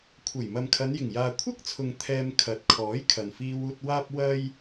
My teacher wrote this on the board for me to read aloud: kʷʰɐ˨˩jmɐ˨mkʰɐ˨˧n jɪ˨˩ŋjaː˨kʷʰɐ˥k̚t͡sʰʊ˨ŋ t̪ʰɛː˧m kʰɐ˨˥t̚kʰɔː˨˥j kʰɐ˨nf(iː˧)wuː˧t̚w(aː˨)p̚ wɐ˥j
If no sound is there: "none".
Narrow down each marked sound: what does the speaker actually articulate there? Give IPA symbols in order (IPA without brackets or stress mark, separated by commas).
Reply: iː˧, aː˥